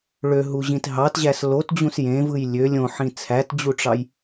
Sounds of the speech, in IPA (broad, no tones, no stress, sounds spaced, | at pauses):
ɭ ø ɦ u ʑ ĩ t ɦ ɑ t ʑ æ s l o t d͡ʑ ũ s j ẽ v ɯ j lʲ ø lʲ õ ħ ĩ t͡sʰ æ t d͡ʑ u ʈ͡ʂ ɑ j